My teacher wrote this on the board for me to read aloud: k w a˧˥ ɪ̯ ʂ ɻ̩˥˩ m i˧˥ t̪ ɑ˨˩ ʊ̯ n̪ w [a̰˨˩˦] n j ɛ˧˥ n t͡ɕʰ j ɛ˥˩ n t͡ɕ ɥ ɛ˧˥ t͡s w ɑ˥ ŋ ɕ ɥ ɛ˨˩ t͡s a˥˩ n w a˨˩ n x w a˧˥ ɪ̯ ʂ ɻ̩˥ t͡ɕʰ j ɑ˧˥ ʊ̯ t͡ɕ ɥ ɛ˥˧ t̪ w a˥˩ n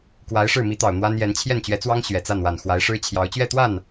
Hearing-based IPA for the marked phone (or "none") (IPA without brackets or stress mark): a˥